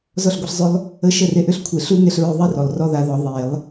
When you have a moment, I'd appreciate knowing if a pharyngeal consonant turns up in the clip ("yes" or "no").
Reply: no